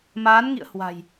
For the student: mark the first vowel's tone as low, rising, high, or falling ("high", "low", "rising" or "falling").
rising